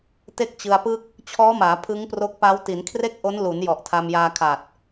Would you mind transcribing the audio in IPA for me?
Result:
t e˥˩ k̚ t͡ɕ ɯ˧ a̯ p ɯ˥˩ k̚ | t͡ɕʰ ɔː˦˥ m aː˩˦ pʰ ɯ˦˥ ŋ p r o˦˥ k̚ p a˦˥ w t i˩˦ n kʰ r e˥˩ k̚ ʔ o˦˥ n l u˩˦ n j ɔ˨˩ ʔ tʰ a˧ m j aː˧ kʰ a˨˩ t̚

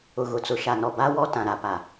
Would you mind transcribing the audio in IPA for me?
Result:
ʊ˨ ɣ ʊ˨ t͡s ʊ˨ ʃ a˨ n ɔ˨ b a˦ w ɔ˦ t ã˨ ɾ a˨ p a˨

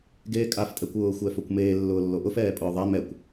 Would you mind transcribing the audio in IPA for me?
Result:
ɡ eː kʼ a f tʼ ɛ kʷ ʊː xʷ ɛː f o kʷ m eː lː ʊː lː o ʔ ʊ f ɛː pʼ ʊː ðˤ a m ɛ kʷ

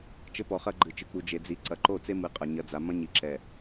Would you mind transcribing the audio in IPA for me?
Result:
t͡ʃ ɘ˦ p ɔ˨ χ ɐ˦ ɡ͡ǃ ɨ˨ t͡ʃ ɨ˨ k͡p u˨ d͡ʒ e˨ d͡z i˨ ǀ ɐ˨ ǃ o˦˨ t͡s e˦ m ɨ˨˦ qʼ ɐ˨ ɲ ɐ˨ d͡z a˨ m ɐ̃˦ ɲ i˨ ǁ ɛ˨

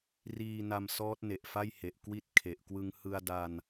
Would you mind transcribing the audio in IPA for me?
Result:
r iː˧ n a˧ m s ɔː˦˥ t̚ n e˨˩ ʔ f a˥˩ j h e˨˩ ʔ k w i˥˩ t̚ kʰ e˨˩ ʔ k w ɯ˧ ŋ h ɯ˧ a̯ d a˧ n

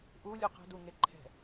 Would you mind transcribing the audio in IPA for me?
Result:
ʔ u lʲ u q ɛ̤ d u ŋ e ǃʰ ɛ̤

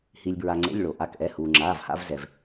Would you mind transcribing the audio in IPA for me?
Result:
h i˩ lʲ b ɹ a˩ ŋ͡ǀ ḛ˩˧˩ lʲ ɭ o˩ ʔ a˩˧˩ k ʔ ɛ˩˧˩ h uː˩ ŋ͡ǁ aː˩˧˩ v h a̰˧ v z ɛ˩ v

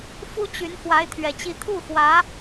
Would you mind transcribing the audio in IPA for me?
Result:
f u˥ t͡ɕ y˧˥ n x w a˧˥ ɪ̯ t̪ʰ ɥ ɛ˨˩ t͡ɕ i˧˥ t̪ʰ u˥˩ x w ä˧˥

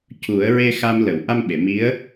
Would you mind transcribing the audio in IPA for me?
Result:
c u˨˩˦ ə̯ ɹ e˧ x a˧ m l ə˨˩˨ w ʔ a˧ m ɓ e˨˩˨ m i˧˥ ə̯

